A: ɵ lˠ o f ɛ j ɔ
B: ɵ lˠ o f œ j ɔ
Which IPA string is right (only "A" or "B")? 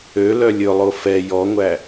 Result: A